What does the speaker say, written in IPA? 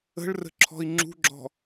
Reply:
ə̤ ɭ r ə̤ ǁʰ ɔ̤ i̯ ŋ͡ǁ ṳ ɡ͡ǁ ɔ̤

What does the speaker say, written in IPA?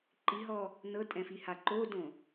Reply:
ǃ i ɦ ɔ | n ɤ tʼ ɛ̃ f i h a ǃ o d õ

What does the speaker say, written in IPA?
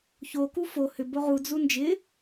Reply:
ç o k u f o h ʏ b o ʁ u d͡z u n d͡ʒ ɪ

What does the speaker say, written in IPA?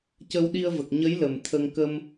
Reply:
c ə˧ w ɗ i˧ ə̯ v ə˨˩ k̚ ɲ ə˧˥ j l ə˨˩ m t̪ʰ ə˧ ŋ k ə˧ m

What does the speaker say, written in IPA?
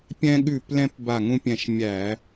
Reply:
pʲ ɛ̃˧ ɠ ʉ˧˩ p l ɛ̃˧ p b a˧˩ ŋ ũ˧ pʲ ɛ̃˧˩ ʃ mʲ æ˧˩˧

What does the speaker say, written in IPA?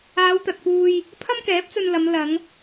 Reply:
aː˨˧ w t̪ ɐ˨ t̚ p uː˧ j | pʰ ɐ˥ m k ɛː˨˥ p̚ t͡s ɵ˧ n l ɐ˨˧ m l ɐ˨˧ ŋ

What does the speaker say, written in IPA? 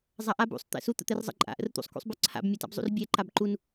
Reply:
zˤ a ʔ a b ṵ sˤ t̪ ɛ̰ s u t̪ ə̰ t̪ ɛ r zˤ ə̰ ǃʼ a̰ ʔ ə̰ r t̪ ṵ sˤ k ṵ sˤ b œ ǀʰ a̰ b mʲ ɔ t a̰ b zˤ ṵ r bʲ ɛ ǃ a b ǃ u n

